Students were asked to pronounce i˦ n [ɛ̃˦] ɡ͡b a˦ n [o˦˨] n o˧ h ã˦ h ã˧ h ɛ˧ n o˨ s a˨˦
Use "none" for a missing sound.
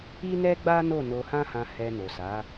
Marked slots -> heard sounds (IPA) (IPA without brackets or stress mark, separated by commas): ɛ˦, o˦˨